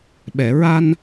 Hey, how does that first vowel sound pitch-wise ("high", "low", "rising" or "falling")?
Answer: low